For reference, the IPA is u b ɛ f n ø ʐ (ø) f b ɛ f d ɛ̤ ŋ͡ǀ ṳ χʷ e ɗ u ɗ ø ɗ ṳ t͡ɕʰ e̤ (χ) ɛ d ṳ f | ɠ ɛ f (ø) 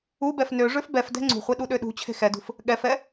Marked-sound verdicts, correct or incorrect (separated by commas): correct, incorrect, incorrect